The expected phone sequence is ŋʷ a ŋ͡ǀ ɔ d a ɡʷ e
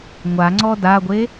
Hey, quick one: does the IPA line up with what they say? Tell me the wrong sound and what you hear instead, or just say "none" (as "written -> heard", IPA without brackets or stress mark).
none